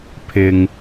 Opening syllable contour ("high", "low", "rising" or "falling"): low